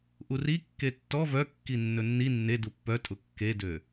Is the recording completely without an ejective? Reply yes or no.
no